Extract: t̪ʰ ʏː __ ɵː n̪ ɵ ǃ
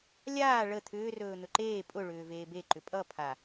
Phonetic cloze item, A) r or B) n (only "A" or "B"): A